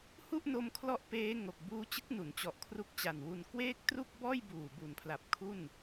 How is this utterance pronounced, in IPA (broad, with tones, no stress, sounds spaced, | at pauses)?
h u˥˩ ʔ n o˧ m kʰ l ɔ˦˥ ʔ p eː˦˥ ŋ o˨˩ k̚ b uː˦˥ t͡ɕ ɯ˦˥ k̚ n u˩˦ n t͡ɕ ɔ˨˩ ʔ kʰ r u˦˥ k̚ t͡ɕ a˨˩ n w u˧ n k w eː˥˩ k̚ t r u˥˩ k̚ b ɔː˥˩ j b uː˨˩ b u˩˦ n pʰ l a˨˩ p̚ kʰ u˥˩ n